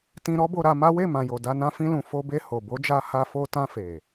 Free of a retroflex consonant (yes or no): yes